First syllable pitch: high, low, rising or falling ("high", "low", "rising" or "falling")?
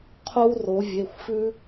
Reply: high